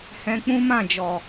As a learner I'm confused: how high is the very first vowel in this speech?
mid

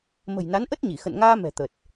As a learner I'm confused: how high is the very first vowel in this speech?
mid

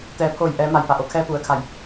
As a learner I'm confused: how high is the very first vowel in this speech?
mid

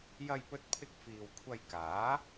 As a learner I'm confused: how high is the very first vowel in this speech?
low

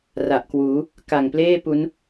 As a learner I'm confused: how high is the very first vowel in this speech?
low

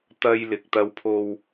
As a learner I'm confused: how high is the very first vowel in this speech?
low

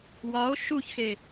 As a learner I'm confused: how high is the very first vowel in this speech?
low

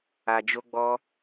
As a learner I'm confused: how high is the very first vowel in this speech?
low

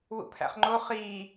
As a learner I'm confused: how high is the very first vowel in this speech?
high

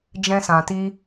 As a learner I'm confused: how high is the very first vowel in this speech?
mid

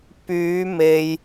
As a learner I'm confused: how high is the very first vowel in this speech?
high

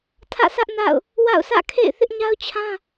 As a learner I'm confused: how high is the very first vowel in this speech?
low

